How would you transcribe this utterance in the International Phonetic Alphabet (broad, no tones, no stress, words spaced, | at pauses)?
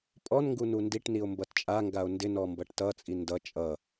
pʼɔnŋɡu nundiʈnio̯ mbʌtt͡ʃʼaŋɡao̯ ndɪnɔ mbʌʈtʌt͡sʼi ndʌ t͡ʃʼʌ